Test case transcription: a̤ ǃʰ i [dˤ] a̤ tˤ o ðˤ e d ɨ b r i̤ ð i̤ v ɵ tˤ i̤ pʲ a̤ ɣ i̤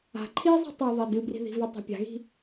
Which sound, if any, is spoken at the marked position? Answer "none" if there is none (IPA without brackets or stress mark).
zˤ